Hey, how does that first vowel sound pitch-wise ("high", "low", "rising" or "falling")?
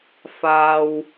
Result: low